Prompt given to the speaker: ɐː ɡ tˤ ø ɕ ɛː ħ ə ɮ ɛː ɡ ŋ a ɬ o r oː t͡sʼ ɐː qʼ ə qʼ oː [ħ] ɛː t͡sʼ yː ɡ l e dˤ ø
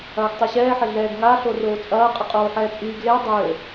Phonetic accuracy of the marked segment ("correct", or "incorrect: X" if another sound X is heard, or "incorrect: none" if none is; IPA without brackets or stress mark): correct